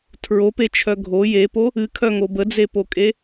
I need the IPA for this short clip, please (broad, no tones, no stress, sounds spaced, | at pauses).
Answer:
tʰ ɹ o p e t͡ʃʰ œ ɡʱ o j e p o | ɨ kʰ œ ŋ o b ə d͡z e p o kʼ e